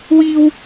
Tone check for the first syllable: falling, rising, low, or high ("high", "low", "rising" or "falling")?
high